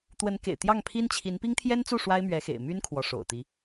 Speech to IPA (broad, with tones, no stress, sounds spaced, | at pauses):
t̪ w ə˧˥ n k ḛ˨˩ ɪ̯ t̪ j ɑ˥˩ ŋ pʰ i˥ n t͡ɕʰ i˧˥ n p i˥ ŋ t̪ʰ j ɛ˥ n t͡s u˥˩ ʂ w a˥ ɪ̯ m ɥ ɛ˧˥ x ḛ˨˩ ɪ̯ m y˥ n kʰ w ɔ˧˥ ʂ o̰˨˩ ʊ̯ t̪ i˧˥